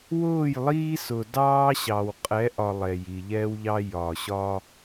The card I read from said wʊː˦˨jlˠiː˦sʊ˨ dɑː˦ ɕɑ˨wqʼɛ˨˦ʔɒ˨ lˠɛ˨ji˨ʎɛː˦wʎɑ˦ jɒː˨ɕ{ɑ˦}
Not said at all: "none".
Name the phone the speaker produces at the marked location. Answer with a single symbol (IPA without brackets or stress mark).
ɒ˦